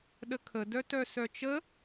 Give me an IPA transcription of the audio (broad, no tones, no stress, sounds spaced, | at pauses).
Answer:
ɗ ə kʰ ə d œ t œ s œ t͡ʃ ə